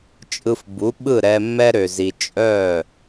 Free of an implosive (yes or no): no